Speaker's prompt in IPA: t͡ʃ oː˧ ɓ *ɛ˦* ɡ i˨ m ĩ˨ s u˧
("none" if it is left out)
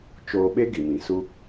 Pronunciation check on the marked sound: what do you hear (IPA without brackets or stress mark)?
e˦